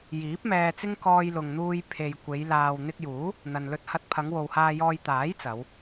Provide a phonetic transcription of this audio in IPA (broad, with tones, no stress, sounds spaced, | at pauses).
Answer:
j iː˨˥ p̚ m ɛː˧ t͡s ɪ˥ ŋ k ɔː˧ j l ʊ˨ ŋ n̪ uː˧ j pʰ e˨ j kʷ e˨˧ j l aː˧ w n̪ ɪ˧ k̚ j uː˨˥ | n̪ ɐ˨ n l ɵ˧ t̚ h ɐ˧ t̚ pʰ ɐ˨˧ ŋ w o˨ w h aː˧ j ɔː˧ j t̪ aː˨˥ j t͡s ɐ˨˧ w